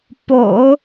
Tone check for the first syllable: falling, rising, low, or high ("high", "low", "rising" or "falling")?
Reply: low